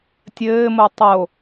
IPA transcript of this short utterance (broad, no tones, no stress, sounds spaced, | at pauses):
tʲ ɘː m o tˤ o